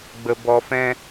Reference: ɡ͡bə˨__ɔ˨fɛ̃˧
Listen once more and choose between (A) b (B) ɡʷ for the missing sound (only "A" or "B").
A